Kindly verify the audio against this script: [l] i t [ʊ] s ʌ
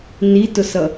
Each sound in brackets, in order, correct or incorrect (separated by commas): incorrect, correct